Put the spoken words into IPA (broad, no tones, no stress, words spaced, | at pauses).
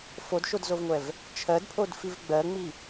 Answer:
fodʃodzovŋʷɛv | t͡ʃʰɜdpʰodfiv ɡ͡bɜŋ͡mi